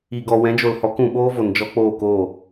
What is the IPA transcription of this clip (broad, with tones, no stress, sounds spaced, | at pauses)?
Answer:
i˨ ɡ ɔ˨ w ɛ̃˨˦ d͡ʒ o˨ l h ɔ˨˦ k ũ˨ ɓ oː˦ v o˨ n d͡ʒ ɔ˦ k͡p oː˦˨ k oː˦˨